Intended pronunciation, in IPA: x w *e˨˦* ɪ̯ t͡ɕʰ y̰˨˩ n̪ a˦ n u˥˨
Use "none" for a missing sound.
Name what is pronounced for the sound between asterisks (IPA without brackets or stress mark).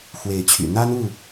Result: e˨˦